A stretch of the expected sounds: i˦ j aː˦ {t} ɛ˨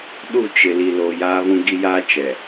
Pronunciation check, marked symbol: incorrect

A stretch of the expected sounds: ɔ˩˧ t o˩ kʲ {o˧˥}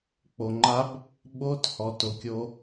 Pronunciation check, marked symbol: incorrect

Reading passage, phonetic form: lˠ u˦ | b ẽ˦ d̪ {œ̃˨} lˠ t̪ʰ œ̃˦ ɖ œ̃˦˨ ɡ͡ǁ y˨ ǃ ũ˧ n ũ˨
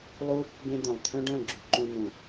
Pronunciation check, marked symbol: correct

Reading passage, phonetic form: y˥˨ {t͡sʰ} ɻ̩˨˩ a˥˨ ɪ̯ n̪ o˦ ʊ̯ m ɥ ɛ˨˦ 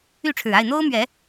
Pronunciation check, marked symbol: incorrect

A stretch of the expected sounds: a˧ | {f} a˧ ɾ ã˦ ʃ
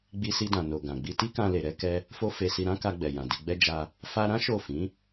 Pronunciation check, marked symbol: correct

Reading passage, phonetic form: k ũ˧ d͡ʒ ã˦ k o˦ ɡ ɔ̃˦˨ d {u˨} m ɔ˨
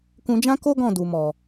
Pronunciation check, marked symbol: correct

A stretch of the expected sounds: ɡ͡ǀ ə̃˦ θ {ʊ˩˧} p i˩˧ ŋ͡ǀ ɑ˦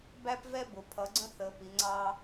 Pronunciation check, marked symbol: incorrect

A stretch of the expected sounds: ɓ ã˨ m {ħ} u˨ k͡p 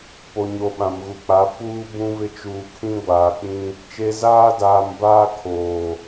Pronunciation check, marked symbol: incorrect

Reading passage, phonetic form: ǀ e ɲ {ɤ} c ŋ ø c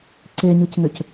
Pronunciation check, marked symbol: incorrect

